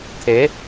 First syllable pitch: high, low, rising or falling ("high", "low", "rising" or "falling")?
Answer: rising